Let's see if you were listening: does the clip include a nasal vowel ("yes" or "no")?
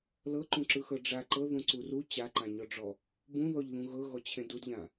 yes